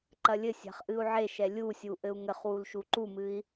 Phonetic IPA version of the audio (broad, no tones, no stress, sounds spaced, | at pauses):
ǃ ɐ lʲ ɘ sʲ a̤ χ ʔ ɨ u̯ ʕ e ʃ ɛ lʲ u sʲ u ʔ ɘ u̯ ŋ ɘ χ w u l ʃ u ǃ u m ɨ i̯